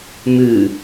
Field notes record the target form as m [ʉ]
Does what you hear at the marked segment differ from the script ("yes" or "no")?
no